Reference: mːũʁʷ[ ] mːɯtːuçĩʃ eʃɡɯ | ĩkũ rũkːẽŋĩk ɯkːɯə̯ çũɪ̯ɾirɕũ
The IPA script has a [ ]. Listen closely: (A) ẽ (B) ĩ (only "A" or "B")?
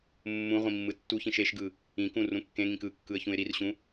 B